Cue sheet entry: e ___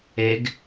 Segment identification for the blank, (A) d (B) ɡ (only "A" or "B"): B